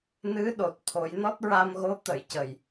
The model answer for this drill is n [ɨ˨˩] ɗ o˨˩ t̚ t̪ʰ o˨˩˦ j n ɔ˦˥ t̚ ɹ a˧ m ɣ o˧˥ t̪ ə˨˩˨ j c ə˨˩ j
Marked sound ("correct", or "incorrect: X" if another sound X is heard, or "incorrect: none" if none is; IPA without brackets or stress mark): incorrect: ɨ˧˥